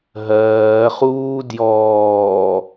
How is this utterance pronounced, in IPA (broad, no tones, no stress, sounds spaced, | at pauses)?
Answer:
ɦ ɜː χ uː d j ɔː